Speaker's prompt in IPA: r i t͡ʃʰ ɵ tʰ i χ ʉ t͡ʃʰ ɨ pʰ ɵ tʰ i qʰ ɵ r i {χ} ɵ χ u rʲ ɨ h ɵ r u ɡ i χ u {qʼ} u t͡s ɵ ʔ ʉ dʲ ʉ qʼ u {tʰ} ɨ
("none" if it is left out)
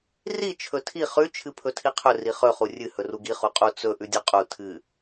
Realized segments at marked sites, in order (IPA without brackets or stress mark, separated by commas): χ, qʼ, tʰ